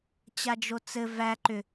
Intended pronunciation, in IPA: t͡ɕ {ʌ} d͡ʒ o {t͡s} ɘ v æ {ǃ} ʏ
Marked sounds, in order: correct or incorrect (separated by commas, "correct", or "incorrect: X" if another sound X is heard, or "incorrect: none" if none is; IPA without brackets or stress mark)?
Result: incorrect: a, correct, correct